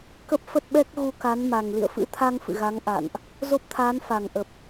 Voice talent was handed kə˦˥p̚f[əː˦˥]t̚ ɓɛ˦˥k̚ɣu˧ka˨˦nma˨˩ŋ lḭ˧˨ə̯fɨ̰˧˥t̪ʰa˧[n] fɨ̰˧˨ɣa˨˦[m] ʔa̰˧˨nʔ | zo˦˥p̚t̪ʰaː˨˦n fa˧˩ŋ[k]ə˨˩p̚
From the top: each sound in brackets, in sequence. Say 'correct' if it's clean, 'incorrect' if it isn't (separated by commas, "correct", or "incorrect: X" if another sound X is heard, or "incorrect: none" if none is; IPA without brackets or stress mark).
incorrect: ə˦˥, incorrect: ŋ, incorrect: ŋ, incorrect: ʔ